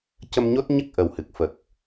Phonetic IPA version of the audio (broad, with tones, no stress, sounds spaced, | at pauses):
c ə˧ m ɲ o˦˥ t̚ ɲ ə˦˥ k̚ ʔ ə˨˩ w h ɨ˨˩ k̚ f ə˨˩ k̚